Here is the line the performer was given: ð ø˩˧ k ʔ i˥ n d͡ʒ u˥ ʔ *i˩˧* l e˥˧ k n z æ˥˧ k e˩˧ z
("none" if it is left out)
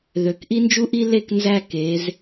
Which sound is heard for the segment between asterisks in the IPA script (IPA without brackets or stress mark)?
i˥